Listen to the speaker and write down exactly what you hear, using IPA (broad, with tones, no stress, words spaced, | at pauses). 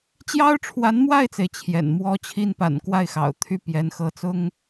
t͡ɕjɑ˥ʊ̯ʈ͡ʂʰwa˧˥nmwa˥˩ɪ̯t͡se˩ɪ̯ t͡ɕʰjɛ̰˨˩nmwɔ˥t͡ɕʰi˥n pa̰˨˩n kwa˥˩ɪ̯xɑ̰˨˩ʊ̯ t̪ʰy˥˩ pjɛ˧˥nxɤ˧˥t͡sʊ˥ŋ